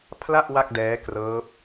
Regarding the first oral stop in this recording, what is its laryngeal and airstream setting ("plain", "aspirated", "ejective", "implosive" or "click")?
aspirated